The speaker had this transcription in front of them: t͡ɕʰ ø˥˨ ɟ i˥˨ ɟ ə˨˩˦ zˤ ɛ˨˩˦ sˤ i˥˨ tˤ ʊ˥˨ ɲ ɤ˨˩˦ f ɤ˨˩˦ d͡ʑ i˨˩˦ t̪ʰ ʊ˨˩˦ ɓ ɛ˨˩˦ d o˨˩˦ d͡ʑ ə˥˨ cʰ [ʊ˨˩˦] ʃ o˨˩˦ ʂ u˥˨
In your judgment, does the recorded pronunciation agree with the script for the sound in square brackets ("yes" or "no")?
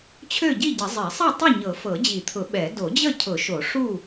yes